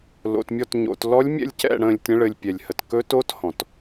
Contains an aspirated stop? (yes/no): no